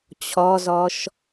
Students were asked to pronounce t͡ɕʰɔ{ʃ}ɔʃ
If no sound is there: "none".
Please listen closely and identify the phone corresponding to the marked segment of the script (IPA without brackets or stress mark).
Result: z